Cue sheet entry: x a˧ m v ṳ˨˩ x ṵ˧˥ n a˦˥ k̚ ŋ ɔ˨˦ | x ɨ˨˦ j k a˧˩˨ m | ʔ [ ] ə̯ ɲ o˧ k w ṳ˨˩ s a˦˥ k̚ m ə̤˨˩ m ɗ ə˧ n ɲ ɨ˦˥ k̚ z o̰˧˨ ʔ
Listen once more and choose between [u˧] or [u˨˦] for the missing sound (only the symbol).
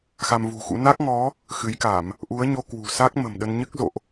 u˨˦